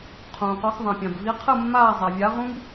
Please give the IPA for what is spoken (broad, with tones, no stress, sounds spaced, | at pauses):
qʰ ũː˩ q ɔ˨˦ x ðˤ ã˩ pʲ ã˩ b v i˨˦ qʰ ɯ˦˨ mː aː˦˨ zˤ a˩ vʲ a˨˦ ʁ ũ˥ b